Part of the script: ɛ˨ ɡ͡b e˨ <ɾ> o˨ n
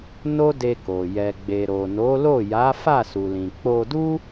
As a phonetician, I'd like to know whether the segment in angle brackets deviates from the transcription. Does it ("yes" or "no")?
no